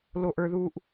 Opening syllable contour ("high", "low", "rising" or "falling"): low